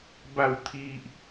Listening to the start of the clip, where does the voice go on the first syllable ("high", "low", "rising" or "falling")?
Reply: falling